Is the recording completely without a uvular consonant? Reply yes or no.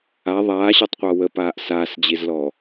no